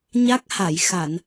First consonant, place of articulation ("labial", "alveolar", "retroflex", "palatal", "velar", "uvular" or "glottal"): palatal